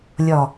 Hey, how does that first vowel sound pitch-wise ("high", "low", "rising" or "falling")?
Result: low